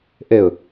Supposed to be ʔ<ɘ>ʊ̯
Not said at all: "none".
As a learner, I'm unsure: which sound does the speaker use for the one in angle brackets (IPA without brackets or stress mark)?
ɘ